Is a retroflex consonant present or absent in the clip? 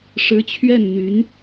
present